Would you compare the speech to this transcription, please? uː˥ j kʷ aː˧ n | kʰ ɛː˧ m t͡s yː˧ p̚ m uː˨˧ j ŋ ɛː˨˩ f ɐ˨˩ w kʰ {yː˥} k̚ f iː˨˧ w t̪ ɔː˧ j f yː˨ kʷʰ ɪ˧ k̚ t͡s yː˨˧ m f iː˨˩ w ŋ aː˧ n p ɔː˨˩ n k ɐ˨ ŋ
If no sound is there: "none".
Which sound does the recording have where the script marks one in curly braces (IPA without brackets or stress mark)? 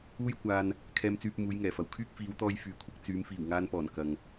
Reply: yː˥